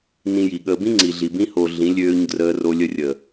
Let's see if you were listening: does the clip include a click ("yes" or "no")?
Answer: yes